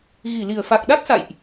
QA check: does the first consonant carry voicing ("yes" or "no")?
yes